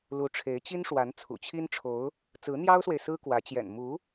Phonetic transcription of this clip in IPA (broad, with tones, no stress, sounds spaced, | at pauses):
l u˧˥ ʈ͡ʂʰ e˧˥ ɪ̯ t͡ɕ i˥ n ʂ w a˧˥ n t͡sʰ ṵ˨˩ t͡ɕʰ i˥ n ʈ͡ʂʰ o˧˥ ʊ̯ | t͡s ɹ̩˧˥ n̪ j ɑ˥ ʊ̯ s w e˨ ɪ̯ s ɹ̩˥ k w ä˧˥ t͡ɕ j ɛ̰˨˩ n m u˧˥